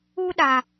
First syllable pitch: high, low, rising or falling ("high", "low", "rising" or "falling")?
high